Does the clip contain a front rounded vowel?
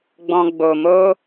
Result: no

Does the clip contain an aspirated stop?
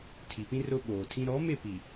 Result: yes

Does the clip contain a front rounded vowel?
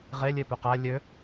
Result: yes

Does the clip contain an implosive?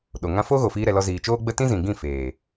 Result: yes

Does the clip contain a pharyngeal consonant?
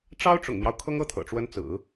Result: no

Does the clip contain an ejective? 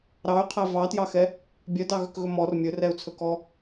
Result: no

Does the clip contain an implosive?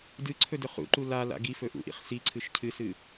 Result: no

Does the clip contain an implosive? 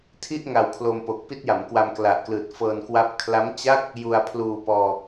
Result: no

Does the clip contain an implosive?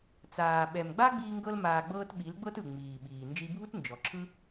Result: yes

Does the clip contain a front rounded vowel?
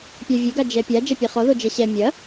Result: no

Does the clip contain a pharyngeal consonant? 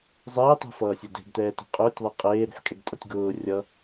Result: yes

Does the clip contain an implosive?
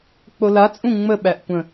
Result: yes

